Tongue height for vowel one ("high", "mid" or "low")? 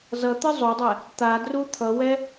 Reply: mid